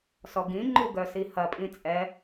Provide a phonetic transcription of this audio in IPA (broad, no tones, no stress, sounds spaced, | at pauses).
s ɔ ɡ ĩ ŋ͡ǃ u ɡ œ s i h ɐ pʼ ĩ t͡sʼ ɛ